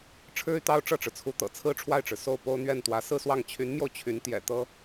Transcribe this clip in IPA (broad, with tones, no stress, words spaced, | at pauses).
ʈ͡ʂʰɻ̩˥y˨t̪ɑ˥ʊ̯ ʈ͡ʂɤ˥˩ʈ͡ʂɻ̩˩t͡sʰu˧˥t̪ɤ̰˨˩ t͡sʰɹ̩˥ʈ͡ʂʰwa˥˩ɪ̯ʈ͡ʂɻ̩˩ so˥˩ʊ̯po˥ʊ̯n̪ɥɛ˥˩nt̪wä˧˥ sɹ̩˥˧swɑ˥˩ŋ t͡ɕʰy˧˥nmjo˧ʊ̯ t͡ɕʰy˧˥n t̪jɛ̰˨˩ t̪ɤ˥